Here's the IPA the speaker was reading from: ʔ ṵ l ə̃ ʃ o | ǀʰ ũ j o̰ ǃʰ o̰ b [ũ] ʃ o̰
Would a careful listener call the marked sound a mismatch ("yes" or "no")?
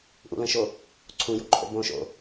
yes